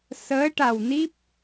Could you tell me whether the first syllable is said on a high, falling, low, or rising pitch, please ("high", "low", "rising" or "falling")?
rising